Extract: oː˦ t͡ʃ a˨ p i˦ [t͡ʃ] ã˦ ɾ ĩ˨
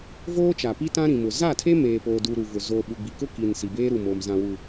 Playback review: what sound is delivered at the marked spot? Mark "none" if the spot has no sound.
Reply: t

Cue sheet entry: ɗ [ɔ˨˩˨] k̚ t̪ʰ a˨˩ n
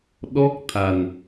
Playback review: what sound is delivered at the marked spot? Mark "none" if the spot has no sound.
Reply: ɔ˦˥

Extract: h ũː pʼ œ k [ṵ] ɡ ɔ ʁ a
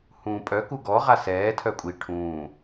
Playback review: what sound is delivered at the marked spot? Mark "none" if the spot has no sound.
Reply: u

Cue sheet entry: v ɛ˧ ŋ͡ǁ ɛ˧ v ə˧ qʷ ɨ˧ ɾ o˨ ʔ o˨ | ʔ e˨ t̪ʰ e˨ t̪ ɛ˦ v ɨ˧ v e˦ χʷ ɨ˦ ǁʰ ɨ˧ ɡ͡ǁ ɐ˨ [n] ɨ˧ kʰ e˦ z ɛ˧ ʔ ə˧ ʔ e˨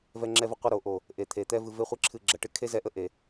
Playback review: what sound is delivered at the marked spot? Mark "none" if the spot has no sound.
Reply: ʈ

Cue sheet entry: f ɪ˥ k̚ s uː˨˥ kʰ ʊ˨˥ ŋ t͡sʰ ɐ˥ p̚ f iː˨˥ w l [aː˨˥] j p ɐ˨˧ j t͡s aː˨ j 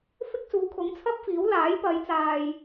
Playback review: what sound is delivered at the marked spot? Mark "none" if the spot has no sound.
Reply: aː˨˥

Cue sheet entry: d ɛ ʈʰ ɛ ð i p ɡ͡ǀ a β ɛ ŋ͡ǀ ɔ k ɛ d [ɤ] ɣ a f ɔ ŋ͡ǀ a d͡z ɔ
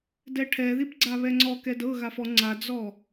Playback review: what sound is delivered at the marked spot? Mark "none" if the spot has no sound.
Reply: ɤ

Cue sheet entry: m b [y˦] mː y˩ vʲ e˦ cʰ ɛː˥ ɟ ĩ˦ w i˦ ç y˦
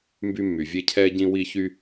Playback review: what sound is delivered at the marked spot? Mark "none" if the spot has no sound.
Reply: y˦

